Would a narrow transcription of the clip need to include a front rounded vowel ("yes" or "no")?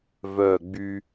yes